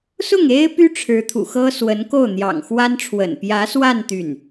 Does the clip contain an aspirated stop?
yes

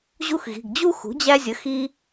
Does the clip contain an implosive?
no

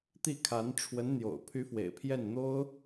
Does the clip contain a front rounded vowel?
yes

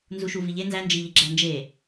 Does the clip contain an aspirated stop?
no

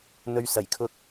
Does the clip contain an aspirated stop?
yes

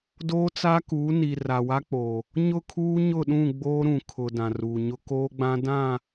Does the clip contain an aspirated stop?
yes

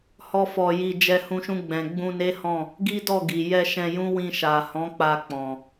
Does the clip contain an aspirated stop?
no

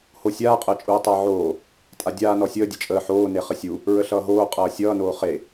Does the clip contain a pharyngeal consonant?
yes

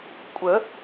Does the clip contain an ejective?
yes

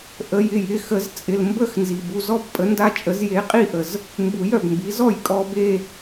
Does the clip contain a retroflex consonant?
no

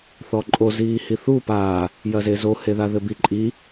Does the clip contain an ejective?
yes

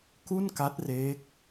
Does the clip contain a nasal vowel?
no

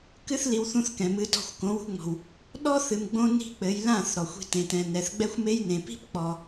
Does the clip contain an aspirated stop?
no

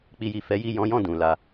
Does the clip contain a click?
no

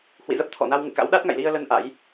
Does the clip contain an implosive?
yes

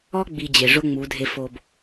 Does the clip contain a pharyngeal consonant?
no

